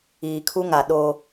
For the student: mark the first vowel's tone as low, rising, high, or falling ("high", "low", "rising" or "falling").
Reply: low